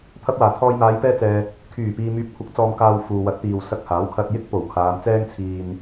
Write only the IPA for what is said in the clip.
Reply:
pʰ ɐ˧ p̚ w aː˨˩ t̪ʰ ɔː˧ j m aː˨˧ j p ɛː˧ t͡s ɛː˨ | kʰ yː˨˩ p iː˨ m yː˨˥ p̚ kʷʰ ɐ˨˥ k̚ t͡s ɔː˧ m k aː˧ w f uː˨ w ɐ˨˥ t̚ t̪ iː˨ w s ɐ˧ k̚ h aː˨˥ w kʰ ɐ˧ t̚ j ɪ˥ k̚ p o˨˩ w kʰ aː˨˧ m t͡s ɛː˥ ŋ t͡sʰ iː˧ n

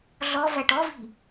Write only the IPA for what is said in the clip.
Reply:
ɮ ɔ v æ ʈ ɔ v i̤

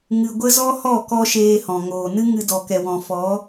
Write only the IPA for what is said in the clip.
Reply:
ŋ ɨ˧ ɡʷ ə˦ z ɔ˦ h ɔ˦˨ k ɔ˧ ʃ eː˧ h ɔ̃˨ ŋ oː˨ n ɨ˦ ŋ ɨ˧ d ɔ˨ k ɛ˨ w ɔ̃˨ f ɔ˨˦

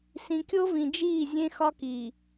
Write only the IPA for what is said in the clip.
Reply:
s ĩ˨ kʲ o˦ v ĩ˨ d͡ʒ iː˦˨ zʲ ẽ˦ x ɒ˦ k i˨

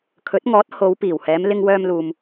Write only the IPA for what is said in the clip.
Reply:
kʰ ɵ˨˥ t̚ ŋ ɔː˨˥ t̚ h o˨˧ w p iː˨˩ w h ɛː˨˧ m l ɪ˧ ŋ w œː˧ m l uː˨ m

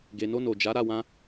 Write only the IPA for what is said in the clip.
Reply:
ɡ e˨ n o˧ n o˨ d͡ʒ a˨˦ ɾ a˦˨ w ã˧

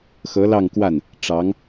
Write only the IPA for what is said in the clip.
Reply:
x ɤ˧˥ l ɑ˥˧ ŋ k w a˥˩ n | ʈ͡ʂ ɑ˧˥ ŋ

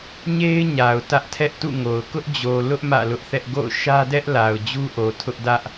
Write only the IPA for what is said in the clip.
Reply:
ɲ e˦ ɪ̯ ɲ a˨ ʊ̯ t ä˦ ʔ tʰ ɛ˦ ʔ t ṵ˦˨ ŋ o˨ ʊ̯ k ʊ˦ ʔ d͡ʑ o˨ l ʊ˦ ʔ m ä̰˦˨ l ʊ˦ ʔ θ ɛ˦ ʔ ɡ o̰˦˨ ʊ̯ ʃ ä˦ d ɛ˦ ʔ l a˨ ʊ̯ d͡ʑ u˦ ʔ o˨ tʰ ʊ˦ ʔ d ä˦ ʔ

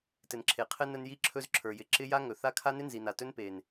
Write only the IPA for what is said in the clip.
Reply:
t ɘ˨ n ǁʰ e˨ qʰ ɘ˦ n ə˧ n j i˧ ǁʰ ɵ˧ z ǁʰ ə˞˨ j ɪ˨ ǁ ɪ˦ j a˦ ŋ ɵ˨ θ a˦ kʰ a˦ n ɪ˦ n z i˨ n a˨ t ɵ˦ n p e˨ n

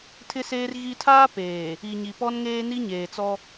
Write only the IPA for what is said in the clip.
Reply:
tʰ ɪ˦ s eː˦ r ɣ i˦ tʰ aː˦ p eː˨ | i˨ ɲ i˨ p ɔ˦ n ŋ eː˦ n i˦ ɲ eː˨ t͡s ɔ˦

